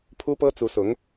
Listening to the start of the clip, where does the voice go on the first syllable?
high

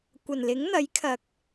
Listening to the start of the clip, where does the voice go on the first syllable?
low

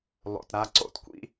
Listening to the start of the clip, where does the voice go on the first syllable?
low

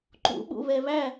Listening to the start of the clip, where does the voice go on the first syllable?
rising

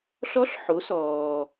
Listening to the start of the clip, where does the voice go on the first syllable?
rising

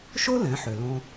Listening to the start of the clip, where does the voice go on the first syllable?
high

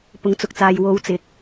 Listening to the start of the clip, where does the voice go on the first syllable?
rising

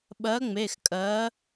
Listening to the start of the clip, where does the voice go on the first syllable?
rising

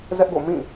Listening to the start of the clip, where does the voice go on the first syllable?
high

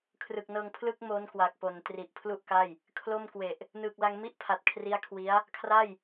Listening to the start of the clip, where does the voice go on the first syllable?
low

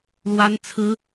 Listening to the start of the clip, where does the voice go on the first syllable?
high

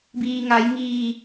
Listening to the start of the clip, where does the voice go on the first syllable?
low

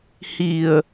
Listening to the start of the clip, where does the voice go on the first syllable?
low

